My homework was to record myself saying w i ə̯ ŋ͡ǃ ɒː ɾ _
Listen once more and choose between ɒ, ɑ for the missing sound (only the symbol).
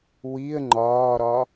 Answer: ɒ